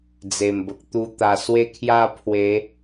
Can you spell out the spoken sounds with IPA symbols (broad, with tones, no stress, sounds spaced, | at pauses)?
d͡z e˨˩ m b ə˨ k̚ t̪ u˧ t̪ a˨˩ s w e˥˧ kʰ j a˥˧ pʰ w e˨˦